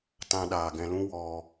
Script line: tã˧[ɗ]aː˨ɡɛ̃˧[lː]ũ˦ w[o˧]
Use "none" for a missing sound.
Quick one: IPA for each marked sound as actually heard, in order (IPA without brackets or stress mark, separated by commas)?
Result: ɗ, l, ɔ˧